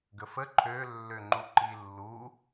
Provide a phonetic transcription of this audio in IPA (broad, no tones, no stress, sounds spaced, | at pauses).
ɡ ə f ə ǃʰ ø lː ø ŋ͡ǃ u ǃ i lː u